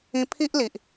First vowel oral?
no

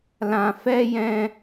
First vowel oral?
no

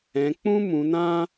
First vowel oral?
no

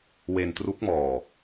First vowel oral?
yes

